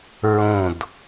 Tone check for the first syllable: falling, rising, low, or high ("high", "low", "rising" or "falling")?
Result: falling